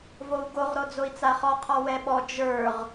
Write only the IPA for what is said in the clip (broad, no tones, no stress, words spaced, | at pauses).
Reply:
vou̯ɡoʁ ɾod͡zoi̯t͡saχɔ qʰɔwɛɓɔ d͡ʒə˞ʁ